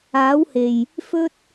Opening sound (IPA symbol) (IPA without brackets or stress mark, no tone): aː